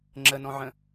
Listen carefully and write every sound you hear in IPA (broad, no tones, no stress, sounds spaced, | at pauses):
ŋ͡ǁ ə n ɔ̃ ʕ ə̃